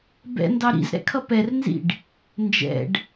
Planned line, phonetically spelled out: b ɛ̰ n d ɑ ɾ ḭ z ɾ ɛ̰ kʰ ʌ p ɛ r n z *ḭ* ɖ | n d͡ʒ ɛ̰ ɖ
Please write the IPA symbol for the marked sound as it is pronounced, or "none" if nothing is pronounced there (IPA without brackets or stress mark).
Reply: ḭ